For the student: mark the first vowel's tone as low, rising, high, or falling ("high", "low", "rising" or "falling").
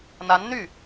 rising